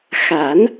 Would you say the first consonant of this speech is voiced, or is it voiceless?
voiceless